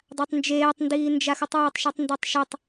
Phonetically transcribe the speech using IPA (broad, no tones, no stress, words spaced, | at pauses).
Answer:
dˤatˤnd͡ʒeːtˤndiː nd͡ʒaxutˤwɔtˤʃetˤ ndatˤʃɪtˤ